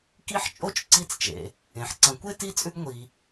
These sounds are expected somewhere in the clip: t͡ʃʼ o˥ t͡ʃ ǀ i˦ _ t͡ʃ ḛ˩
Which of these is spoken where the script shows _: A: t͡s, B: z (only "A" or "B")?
A